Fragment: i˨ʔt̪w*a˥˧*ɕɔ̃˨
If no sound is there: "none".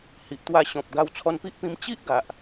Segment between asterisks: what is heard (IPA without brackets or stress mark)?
a˧